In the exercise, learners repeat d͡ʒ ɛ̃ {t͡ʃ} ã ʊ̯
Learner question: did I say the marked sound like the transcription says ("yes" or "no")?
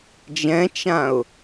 yes